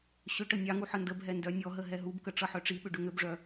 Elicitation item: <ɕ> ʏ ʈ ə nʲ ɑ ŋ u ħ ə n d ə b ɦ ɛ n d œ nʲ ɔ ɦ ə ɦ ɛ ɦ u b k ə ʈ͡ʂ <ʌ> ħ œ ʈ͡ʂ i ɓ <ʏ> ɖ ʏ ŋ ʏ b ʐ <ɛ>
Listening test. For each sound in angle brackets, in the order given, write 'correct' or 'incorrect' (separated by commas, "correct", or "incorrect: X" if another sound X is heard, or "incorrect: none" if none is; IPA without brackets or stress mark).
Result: correct, correct, correct, incorrect: œ